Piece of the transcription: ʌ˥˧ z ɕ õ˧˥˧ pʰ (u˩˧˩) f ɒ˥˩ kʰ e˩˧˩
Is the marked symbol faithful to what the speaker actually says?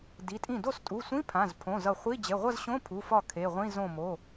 yes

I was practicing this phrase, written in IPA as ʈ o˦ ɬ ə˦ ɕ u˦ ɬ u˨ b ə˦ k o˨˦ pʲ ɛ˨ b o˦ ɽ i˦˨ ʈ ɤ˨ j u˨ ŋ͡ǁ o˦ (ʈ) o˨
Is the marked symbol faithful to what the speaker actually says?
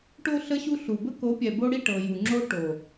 yes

